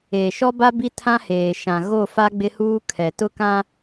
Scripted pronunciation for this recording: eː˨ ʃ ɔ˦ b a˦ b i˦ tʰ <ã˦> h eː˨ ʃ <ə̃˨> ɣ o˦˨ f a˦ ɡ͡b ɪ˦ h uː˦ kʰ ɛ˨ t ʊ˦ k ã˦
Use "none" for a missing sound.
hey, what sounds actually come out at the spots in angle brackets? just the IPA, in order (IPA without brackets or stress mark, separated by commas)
ã˦, ã˨